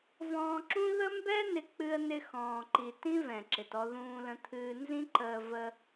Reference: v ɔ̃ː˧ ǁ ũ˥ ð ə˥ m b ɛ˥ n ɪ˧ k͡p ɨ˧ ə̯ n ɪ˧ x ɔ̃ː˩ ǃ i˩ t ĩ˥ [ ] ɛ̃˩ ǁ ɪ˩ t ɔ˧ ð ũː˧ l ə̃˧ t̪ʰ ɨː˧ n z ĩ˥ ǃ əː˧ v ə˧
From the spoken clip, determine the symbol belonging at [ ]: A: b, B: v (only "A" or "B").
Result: B